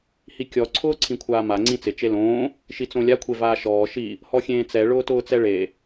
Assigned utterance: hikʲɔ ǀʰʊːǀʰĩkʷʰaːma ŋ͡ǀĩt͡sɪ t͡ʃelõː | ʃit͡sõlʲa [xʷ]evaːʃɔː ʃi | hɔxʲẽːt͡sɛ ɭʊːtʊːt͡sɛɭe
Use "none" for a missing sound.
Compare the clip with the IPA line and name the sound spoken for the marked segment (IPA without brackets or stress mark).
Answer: kʷʰ